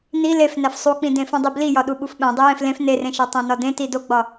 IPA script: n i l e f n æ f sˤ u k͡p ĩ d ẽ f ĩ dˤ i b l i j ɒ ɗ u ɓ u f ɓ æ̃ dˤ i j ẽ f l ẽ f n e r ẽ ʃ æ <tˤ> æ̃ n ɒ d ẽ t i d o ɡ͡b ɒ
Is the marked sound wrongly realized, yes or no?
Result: no